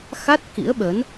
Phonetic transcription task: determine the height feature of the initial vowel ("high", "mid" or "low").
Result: low